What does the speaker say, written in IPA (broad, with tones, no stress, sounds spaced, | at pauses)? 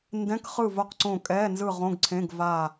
n d ɛ̃˧˥˧ k χ ɯ˦˨ v o˦˨ q ǀ õ˦˨ kʼ ɛ˧˥˧ n z ɯ˦˨ ʁ õ˧˥˧ ɡ ǀʰ ẽ˧˥˧ ɡ v a˦˨